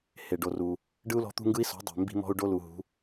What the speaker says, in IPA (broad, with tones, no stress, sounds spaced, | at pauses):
h e˨ ɖ o˨ r u˨ | ɖ ɯ˦ u̯ l ɔ̤˦ t̪ ṳ˦ ŋ ɡ ɯ˦ i̯ s ɔ̤˨˦ dˤ e̤˨ m b i̤˧ m ɔ̤˧ u̯ ɖ o˦ l u˨ ɦ ṳ˨˦